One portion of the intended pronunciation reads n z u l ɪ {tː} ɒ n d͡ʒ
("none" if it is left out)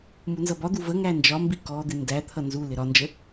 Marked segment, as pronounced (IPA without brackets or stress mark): ɾ